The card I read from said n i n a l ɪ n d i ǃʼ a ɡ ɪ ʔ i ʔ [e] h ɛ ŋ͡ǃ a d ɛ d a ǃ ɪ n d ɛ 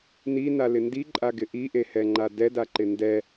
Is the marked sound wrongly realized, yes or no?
no